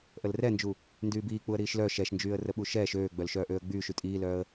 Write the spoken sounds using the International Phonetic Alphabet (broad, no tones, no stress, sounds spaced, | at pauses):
ʔ ə l r ɛ n d͡ʒ u | n d yː b iː k͡p u ə̯ ɾ iː ʃ l œ ʃ ɛ ʃ n d͡ʒ yː ə̯ r ə ɓ u ʃ ɛː ʃ øː ɡ͡b œ l ʃ œː ʔ øː ə̯ ɡ͡b yː ʃ y tʼ iː l œː ə̯